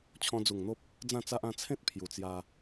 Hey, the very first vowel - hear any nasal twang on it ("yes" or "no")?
yes